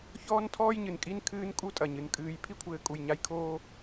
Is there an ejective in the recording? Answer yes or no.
yes